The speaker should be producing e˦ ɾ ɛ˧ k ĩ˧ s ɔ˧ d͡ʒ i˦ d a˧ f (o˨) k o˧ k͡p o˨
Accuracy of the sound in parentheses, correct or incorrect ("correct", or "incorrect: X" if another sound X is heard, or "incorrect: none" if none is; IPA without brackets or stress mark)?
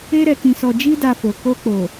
correct